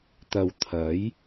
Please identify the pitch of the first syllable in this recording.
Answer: low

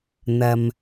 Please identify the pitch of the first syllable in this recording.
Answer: low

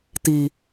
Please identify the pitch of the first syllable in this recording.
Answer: high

